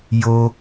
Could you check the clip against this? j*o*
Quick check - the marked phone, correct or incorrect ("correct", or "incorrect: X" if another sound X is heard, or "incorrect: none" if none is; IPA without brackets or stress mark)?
correct